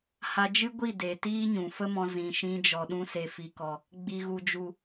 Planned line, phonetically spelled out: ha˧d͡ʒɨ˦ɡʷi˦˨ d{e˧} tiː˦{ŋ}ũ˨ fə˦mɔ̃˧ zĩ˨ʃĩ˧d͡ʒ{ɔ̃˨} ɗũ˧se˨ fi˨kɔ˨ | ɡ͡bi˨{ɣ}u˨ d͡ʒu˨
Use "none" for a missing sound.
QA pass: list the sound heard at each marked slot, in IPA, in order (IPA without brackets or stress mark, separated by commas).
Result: e˨, ɲ, ɔ˨, ɣ